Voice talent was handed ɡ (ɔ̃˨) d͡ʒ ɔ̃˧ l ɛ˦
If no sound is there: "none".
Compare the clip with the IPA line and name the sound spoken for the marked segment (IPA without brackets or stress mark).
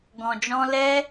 ɔ̃˨